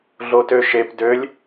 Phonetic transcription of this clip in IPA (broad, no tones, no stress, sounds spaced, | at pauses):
ɮ o t ø ʃ e p d ø lʲ